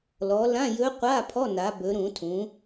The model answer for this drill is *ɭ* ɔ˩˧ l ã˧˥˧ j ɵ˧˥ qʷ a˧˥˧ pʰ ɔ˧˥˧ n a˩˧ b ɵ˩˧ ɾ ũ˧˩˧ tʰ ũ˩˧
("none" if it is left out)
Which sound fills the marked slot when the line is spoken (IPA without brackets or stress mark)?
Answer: l